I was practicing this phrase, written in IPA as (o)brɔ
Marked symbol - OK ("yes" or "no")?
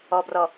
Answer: no